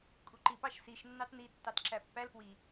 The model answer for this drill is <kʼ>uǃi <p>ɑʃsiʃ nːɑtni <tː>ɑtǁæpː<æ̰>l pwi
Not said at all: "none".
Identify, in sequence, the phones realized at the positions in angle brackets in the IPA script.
kʼ, p, tː, æ

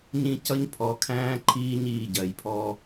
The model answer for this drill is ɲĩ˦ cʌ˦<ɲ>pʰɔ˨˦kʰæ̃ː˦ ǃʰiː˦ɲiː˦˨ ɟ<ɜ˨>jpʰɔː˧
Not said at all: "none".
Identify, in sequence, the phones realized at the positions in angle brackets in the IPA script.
ɲ, ɜ˨

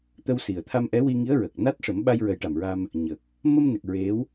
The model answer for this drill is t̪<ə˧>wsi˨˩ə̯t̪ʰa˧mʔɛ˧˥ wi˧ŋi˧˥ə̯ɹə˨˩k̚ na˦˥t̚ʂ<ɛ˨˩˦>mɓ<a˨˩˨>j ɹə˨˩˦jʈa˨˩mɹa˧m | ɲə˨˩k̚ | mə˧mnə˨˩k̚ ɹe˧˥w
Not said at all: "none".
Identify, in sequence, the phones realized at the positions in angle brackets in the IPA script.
ə˧, ə˨˩˦, a˧

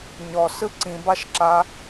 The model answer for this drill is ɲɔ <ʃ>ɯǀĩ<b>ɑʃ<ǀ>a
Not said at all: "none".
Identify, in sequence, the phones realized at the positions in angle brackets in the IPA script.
s, b, ǁ

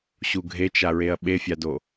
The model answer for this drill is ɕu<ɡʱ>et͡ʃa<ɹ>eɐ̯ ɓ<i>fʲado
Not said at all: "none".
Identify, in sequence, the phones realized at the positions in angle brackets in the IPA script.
ɡʱ, ɹ, e

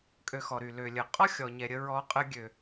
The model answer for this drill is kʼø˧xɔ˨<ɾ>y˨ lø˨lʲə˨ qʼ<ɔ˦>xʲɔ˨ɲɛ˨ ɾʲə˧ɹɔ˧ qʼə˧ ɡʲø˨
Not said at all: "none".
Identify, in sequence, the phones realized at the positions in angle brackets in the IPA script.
ɾ, ɔ˦

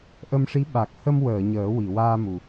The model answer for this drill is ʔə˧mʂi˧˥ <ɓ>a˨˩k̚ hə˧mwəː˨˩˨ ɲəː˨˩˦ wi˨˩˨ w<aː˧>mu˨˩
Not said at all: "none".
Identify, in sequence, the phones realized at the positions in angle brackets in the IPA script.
ɓ, aː˧

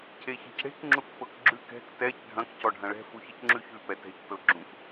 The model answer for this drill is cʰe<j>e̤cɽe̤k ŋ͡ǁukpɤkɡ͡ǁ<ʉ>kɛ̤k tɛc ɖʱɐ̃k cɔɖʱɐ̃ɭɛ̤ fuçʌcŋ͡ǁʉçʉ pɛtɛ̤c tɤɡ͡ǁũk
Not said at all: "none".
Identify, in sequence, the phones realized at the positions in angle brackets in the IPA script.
ç, ʉ

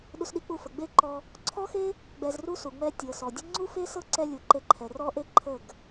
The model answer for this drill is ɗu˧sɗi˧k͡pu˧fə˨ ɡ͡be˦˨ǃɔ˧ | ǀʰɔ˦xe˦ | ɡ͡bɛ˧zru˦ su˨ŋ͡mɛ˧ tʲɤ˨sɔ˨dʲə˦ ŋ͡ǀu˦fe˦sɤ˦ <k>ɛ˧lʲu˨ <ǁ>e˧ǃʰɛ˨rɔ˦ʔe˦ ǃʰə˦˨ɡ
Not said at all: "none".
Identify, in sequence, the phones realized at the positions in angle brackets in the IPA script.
ǀ, ǃ

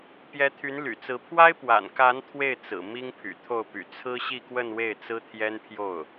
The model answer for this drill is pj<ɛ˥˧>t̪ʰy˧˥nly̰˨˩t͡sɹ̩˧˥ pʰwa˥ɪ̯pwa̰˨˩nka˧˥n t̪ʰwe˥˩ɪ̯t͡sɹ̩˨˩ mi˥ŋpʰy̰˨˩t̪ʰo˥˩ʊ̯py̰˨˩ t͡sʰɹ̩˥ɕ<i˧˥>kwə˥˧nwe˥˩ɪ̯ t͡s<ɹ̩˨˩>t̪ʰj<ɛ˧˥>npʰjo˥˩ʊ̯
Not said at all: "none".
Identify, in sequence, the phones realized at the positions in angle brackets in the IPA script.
ɛ˧˥, i˥˧, ɹ̩˥, ɛ˥

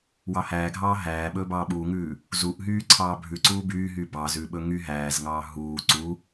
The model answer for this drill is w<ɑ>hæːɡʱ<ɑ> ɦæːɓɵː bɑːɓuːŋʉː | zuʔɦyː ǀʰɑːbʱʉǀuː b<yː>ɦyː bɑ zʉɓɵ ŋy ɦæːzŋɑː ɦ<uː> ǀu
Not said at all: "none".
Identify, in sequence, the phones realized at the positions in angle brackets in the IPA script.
ɑ, ɑː, yː, uː

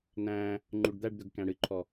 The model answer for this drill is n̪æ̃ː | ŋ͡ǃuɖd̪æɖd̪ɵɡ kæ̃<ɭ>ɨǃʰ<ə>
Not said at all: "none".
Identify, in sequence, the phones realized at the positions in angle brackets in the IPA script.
ɽ, ɔ

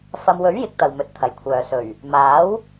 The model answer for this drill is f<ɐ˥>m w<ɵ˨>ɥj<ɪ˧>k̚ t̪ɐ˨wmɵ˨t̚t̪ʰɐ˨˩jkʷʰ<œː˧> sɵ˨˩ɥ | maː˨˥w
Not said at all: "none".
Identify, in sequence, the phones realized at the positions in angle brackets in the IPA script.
ɐ˧, ɵ˨˥, ɪ˨˥, œː˨

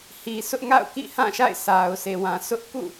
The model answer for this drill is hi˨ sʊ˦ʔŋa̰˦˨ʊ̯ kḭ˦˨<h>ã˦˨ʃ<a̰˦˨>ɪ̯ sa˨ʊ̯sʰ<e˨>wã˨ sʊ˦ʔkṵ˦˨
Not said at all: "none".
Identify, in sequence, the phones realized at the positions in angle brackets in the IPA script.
h, a̰˦˨, e˨

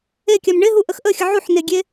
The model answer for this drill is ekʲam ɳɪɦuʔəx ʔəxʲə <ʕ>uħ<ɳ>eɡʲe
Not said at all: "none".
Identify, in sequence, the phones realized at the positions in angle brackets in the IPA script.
ʕ, n

